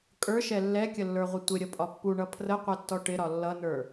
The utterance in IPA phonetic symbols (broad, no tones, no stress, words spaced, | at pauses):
kʼə˞ʃɛ lːɛkʲəlːə˞ʁʷɪ tʷɪɾʲəpʼɒ pːuɳʌ pʰrəqʷɛtːɔ ʈɪɾɒ lːʌnə˞